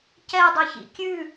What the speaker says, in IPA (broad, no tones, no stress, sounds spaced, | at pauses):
c ɛ dˤ ɵ ç ḭ kʲ ʉ